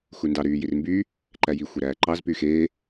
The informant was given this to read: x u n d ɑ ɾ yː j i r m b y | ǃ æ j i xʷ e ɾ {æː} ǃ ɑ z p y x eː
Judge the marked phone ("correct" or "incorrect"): correct